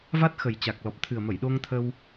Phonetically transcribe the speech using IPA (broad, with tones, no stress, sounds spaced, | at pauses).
v a˦˥ t̚ x ə˨˩ j t͡ɕ a˨˩ k̚ l ɔ˨˩ p̚ t̪ʰ ɨ˨˩ ə̯ m ə˧˩ j ɗ o˧ ŋ t̪ʰ ə˧ w